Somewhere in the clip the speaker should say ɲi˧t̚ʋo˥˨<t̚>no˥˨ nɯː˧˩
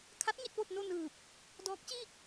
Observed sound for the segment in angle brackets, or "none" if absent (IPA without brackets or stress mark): t̚